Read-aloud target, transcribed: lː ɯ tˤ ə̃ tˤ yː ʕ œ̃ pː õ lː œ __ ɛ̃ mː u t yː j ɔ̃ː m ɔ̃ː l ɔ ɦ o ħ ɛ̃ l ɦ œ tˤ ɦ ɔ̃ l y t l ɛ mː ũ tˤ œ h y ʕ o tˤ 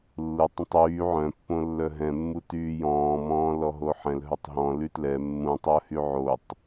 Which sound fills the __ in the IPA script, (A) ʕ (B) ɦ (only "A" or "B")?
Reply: B